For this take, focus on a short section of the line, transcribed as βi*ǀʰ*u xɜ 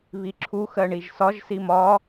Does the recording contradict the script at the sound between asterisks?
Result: yes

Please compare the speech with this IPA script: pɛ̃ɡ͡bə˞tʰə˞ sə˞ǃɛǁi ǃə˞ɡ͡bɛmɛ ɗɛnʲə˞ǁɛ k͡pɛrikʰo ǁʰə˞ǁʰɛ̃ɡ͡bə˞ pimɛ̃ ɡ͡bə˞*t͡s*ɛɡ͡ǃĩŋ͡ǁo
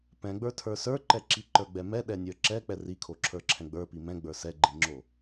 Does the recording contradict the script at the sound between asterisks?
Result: yes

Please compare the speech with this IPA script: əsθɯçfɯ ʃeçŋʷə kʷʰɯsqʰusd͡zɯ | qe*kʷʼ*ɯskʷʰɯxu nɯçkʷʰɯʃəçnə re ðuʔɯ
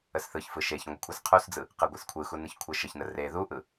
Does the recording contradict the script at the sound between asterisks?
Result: yes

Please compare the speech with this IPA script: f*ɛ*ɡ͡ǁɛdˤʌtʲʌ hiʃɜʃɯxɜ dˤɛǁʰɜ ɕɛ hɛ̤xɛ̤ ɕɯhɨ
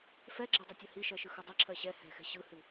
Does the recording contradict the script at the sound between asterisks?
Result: no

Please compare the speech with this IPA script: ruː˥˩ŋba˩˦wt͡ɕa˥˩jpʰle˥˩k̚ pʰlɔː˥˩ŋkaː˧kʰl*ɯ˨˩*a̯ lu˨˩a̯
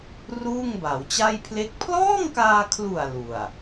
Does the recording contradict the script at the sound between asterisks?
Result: yes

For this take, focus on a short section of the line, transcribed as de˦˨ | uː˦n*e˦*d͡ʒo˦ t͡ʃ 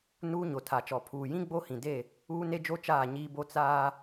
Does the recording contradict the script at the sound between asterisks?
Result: no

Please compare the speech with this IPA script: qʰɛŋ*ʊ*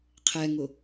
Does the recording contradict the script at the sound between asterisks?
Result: no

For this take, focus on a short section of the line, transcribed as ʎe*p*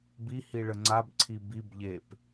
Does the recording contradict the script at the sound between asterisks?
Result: no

